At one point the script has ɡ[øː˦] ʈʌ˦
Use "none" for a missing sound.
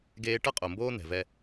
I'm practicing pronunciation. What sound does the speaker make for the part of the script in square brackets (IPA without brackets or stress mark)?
eː˦